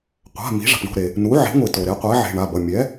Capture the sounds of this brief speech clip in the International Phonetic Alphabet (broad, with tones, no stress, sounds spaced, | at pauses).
qʷ a̤˩˧˩ m i̤˩˥ ʐ a̤˩ p ɳ o̤˩˧˩ ɾ e˩ | n u˩˥ ʕ e̤˩˥ ŋʷ i˩ t o˩ ɾ e˩˥ qʷ ɛ˩˥ ʕ e̤˩˧˩ ɳ a˩˧˩ b ʌ˩˧˩ mʲ ɛ˩˥